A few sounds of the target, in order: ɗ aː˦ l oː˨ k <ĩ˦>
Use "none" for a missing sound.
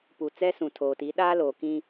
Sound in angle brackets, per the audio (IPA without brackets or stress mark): ĩ˦